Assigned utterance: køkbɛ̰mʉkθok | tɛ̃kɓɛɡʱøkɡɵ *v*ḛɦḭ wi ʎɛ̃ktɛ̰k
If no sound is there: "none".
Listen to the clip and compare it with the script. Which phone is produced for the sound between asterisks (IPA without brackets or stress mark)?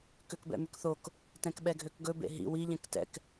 b